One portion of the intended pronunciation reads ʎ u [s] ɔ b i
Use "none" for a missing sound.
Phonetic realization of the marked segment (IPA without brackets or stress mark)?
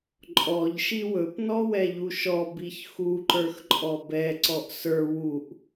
ʃ